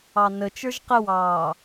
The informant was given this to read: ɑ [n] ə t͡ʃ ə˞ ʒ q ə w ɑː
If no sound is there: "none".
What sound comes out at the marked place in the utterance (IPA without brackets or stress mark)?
n